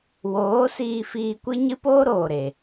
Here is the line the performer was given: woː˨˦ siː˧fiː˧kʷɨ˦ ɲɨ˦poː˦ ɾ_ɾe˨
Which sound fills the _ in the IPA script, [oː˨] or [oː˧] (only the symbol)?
oː˨